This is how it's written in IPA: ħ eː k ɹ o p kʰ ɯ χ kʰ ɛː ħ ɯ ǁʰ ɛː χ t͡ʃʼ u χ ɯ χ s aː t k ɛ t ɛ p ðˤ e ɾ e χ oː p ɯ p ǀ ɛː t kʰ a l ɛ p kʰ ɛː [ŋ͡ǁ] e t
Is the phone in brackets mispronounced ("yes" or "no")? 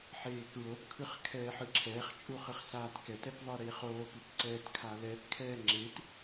no